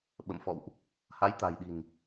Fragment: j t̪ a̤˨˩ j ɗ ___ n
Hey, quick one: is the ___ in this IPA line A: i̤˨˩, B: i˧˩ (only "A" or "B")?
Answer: A